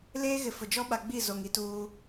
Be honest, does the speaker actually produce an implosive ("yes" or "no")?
yes